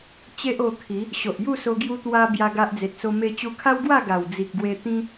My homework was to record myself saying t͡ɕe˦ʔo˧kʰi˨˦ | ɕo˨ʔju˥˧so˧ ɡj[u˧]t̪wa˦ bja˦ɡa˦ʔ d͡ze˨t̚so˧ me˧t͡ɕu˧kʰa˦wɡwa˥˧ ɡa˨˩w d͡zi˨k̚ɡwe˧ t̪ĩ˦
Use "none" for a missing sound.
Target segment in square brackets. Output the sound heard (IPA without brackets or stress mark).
u˦